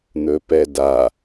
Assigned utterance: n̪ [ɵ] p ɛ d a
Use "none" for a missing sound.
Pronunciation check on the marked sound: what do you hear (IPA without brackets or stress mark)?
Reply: ɵ